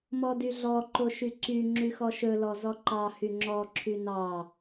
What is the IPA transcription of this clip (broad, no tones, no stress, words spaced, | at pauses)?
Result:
mɔdyɮɔ ǃoʃyǀy ŋ͡ǁyxɔʃɵ lɔzɔǃɑ hyŋ͡ǁɔ ǁʰynɑ